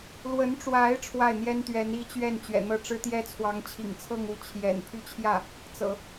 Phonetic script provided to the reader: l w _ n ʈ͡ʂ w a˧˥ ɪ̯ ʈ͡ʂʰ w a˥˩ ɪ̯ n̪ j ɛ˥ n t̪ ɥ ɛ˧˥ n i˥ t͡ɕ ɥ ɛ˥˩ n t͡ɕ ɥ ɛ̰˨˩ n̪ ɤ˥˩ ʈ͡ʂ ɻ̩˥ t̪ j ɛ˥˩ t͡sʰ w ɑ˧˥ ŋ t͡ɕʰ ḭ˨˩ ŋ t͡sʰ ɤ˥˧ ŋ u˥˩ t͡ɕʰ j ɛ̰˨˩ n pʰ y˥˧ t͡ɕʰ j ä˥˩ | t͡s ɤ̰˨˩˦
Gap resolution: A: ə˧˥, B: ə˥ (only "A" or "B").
A